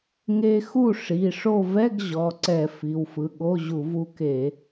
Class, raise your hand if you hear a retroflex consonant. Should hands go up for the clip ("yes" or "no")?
yes